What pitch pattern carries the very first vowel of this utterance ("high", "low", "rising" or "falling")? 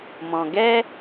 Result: low